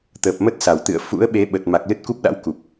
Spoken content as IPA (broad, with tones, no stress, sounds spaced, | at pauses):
t̪ əː˨˩ p̚ m ə˦˥ t̚ s a˧˩ w t̪ ɨ̰˧˨ ə̯ f ṵ˧˥ ə̯ ɓ e˨˦ ɓ ə˨˩ t̚ m a˨˩ k̚ l ɨ˦˥ t̚ k u˦˥ p̚ ɗ a̰˧˥ w k u˨˩ p̚